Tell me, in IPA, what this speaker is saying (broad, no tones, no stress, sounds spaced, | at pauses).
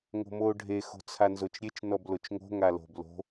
ŋ o̤ m oː ɖʱ e x o̤ t͡sʰ a n z o t͡ʃ ɾʲ e t͡ʃ n ɔ b l o t͡ʃ ŋ o̤ ŋ a l o̤ b l o̤